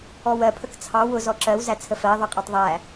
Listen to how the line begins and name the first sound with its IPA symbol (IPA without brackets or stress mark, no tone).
ɔ